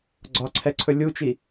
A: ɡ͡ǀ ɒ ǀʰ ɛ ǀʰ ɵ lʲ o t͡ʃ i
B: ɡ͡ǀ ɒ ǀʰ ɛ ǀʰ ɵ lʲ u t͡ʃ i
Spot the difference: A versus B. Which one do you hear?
B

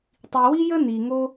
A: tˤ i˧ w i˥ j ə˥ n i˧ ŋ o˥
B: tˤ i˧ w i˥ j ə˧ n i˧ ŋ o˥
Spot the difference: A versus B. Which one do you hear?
A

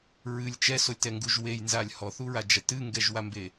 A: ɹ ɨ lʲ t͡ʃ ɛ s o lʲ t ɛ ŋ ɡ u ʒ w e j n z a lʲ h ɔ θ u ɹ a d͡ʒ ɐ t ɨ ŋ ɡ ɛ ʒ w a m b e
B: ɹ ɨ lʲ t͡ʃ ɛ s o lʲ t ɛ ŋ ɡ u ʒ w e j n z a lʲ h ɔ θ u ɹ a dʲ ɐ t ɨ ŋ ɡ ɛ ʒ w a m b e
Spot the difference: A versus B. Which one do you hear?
A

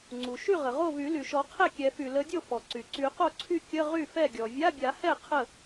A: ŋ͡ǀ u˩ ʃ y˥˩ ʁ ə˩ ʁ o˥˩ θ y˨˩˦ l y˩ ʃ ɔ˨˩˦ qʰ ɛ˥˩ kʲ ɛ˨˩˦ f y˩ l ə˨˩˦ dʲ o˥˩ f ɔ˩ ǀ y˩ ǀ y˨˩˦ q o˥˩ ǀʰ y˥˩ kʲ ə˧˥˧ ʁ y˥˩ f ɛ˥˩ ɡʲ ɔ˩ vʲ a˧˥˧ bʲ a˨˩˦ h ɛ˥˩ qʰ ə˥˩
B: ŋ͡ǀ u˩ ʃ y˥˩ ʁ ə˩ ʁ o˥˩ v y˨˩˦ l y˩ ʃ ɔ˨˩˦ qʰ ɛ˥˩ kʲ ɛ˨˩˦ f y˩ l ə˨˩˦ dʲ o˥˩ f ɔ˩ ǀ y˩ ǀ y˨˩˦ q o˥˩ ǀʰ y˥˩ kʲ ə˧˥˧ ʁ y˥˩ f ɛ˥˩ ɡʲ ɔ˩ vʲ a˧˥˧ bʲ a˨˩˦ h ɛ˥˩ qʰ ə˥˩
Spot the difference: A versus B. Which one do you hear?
B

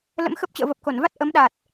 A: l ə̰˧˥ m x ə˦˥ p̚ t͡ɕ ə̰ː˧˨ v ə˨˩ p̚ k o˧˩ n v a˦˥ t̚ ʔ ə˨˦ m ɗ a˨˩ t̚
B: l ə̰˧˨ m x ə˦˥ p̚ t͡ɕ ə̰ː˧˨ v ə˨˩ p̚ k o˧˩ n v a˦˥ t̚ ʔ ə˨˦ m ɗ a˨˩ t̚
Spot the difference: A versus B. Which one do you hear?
A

